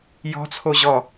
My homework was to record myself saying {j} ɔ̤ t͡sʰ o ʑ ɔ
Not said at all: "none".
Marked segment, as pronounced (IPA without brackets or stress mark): j